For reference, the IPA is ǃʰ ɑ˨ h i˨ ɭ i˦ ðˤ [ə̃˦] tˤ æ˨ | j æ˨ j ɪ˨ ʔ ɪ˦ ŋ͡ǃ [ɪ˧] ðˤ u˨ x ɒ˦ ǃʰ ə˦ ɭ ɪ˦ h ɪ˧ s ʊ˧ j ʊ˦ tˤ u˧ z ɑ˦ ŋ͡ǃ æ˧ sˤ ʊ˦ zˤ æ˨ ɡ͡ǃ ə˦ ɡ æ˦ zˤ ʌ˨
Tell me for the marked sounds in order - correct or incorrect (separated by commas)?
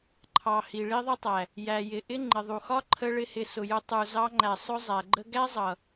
incorrect, incorrect